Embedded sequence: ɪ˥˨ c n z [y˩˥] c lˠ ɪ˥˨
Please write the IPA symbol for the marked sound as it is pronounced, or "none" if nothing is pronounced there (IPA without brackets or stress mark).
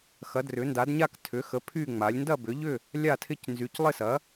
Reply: y˩˥